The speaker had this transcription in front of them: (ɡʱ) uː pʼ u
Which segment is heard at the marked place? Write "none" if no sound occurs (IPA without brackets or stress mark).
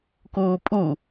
k